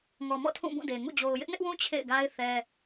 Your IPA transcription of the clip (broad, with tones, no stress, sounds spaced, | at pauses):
ŋ ɔ˨ m ɔ̰˦˨ tʰ ũ˦˨ b ũ˦˨ d e˨ ŋ ṵ˦˨ d͡ʑ o˨ ʊ̯ j ɪ˦ ʔ n ɪ˦ ʔ w ũ˦ t͡ɕʰ ḛ˦˨ ɪ̯ ɡ a˦ ɪ̯ θ ɛ˦